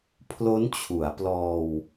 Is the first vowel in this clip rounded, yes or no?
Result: yes